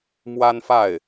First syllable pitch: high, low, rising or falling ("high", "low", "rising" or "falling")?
high